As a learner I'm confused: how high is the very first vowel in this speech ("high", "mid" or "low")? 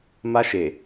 low